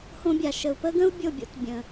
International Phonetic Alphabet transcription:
h õ˧ bʲ a˨ ʃ ə˨ u̯ p ə˦ ɡ ə̃˦ u̯ bʲ o˦˨ bʲ o̰˧ t bʲ ə̃˨

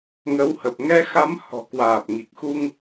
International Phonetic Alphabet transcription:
ŋ ə˨˦ w h ə˨˩ p̚ ŋ ɛ˧ x a˨˦ m h ɔ̤˨˩ k w aː˨˩ p̚ ŋ i˨˩ k̚ x u˧ ŋ

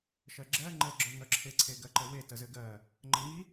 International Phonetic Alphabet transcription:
ʃ ɜ ɡ͡ǁ ɜ ŋ͡ǃ ə ɡ͡ǁ œ ŋ œ ǁʰ e ǀʰ e ɡ ɜ ǃ ə w e t ə z ɘ ɡ ɜ | ŋ͡ǃ ə ŋ i

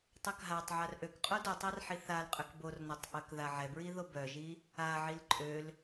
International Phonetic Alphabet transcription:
tˤ œ k ɦ a tˤ ʕ a r ʔ ø k qʼ o d o tˤ a r ħ i θ a l qʼ ø k b o r n o tˤ ʔ œ k ð a ʕ ɛ b ɹ i ð o b œ ʒ i | a ʕ i l ǃʼ ø l

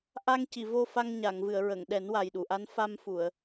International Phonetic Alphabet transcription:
ʔ a˧ ŋ c i˨˩˨ v o˧ f a˧ ŋ ɲ a˨˩˨ ŋ v ɨ˨˩˨ ə̯ ɹ ə˨˩˨ ŋ ɗ ɛ˨˩˦ n w a˨˩ j ɗ u˨˩˨ ʔ a˧˥ n f a˧ m f u˨˩˨ ə̯

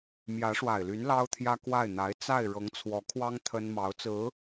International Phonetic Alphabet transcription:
m j ä˧˥ ʂ w a˨˩ ɪ̯ l y˧˥ n l ɑ˥ ʊ̯ t̪ʰ j ä˥ k w a˥˩ ɪ̯ n̪ a˧˥ ɪ̯ t͡s a˥˩ ɪ̯ ɻ ɤ˧˥ ŋ t͡sʰ w ɔ˧˥ kʰ w ɑ˥ ŋ t̪ʰ ə˥ n m ɑ˧˥ ʊ̯ t͡s ɹ̩˧˥

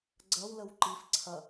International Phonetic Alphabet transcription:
ɡ͡ǀ ɐ w l ə w ǃ i f ǀʰ ɐ

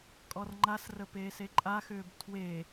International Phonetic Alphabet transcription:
kʼ ɔ r ŋ͡ǃ a s r ə p eː s e ǃʼ a x ʏː b tʰ w e

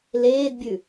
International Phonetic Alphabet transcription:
l eː d bʲ ʉ

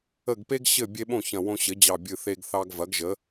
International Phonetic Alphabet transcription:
ə˧˩ ɡ p e˦ ɡ ɕ ɘ˧˩ bʲ e˦ ɓ õ˥˩ ç ɐ̃˧˩ w õ˦ ɕ ɘ˩˥ d͡ʑ ɑ˧˩ bʲ ɨ˧˩ θ e˦ ɡ θ ɑ˦ ɡ v ɐ˩˥ ɡ ʒ ə˩˥

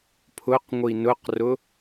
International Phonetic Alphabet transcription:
pʰ ʊ q ŋʷ i n ʊ q r ʊ

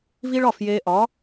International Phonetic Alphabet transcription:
v i˥ ɭ ɒ˥˩ f j eː˧ ʔ ɒ˩˥

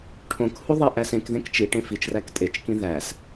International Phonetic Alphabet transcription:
ʈʰ õ k h u ðˤ i ʔ æ s ẽ k ð ẽ k t͡ʃ i ʈ ẽ f i t͡ʃ r æ k tʼ e t͡ʃ k ĩ ð æ s

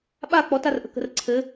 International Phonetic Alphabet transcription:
ɓ a k͡p ɔ t a r ʔ ə̤ k ə̤ r ǀʰ ɘ

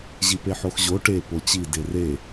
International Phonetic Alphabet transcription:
ʑ i p e ħ o x ʑ o ʈ e p o t͡ɕ i d e r e

